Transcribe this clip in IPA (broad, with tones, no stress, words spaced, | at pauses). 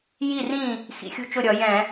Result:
ji˥˩rĩ˥˩ | xḭ˧˩˧xʲṳ˥˩ t͡ʃʊ˥˩ɾʲʌ˧˩˧ jɛ̃˧˩˧